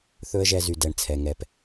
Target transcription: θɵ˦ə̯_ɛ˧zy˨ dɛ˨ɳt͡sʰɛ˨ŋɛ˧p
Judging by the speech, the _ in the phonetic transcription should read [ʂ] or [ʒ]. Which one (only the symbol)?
ʒ